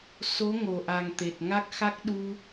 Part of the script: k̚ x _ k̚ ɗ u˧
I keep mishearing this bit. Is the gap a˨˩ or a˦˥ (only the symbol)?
a˦˥